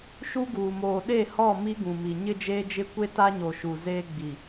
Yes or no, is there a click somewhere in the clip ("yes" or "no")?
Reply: no